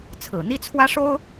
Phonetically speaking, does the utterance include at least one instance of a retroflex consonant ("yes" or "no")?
yes